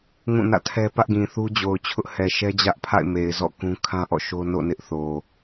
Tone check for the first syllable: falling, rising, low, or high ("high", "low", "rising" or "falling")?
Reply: falling